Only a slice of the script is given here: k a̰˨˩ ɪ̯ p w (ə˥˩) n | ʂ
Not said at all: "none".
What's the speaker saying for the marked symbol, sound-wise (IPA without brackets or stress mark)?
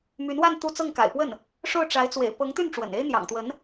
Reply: ə˥˩